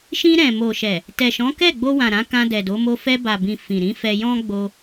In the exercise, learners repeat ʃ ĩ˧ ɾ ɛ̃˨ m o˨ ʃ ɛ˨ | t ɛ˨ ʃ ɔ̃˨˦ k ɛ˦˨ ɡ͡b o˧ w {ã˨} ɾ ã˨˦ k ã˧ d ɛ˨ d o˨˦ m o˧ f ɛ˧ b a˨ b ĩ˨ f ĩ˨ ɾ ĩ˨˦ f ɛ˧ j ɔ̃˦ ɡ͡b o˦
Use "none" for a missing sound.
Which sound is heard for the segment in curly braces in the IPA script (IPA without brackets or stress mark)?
ã˨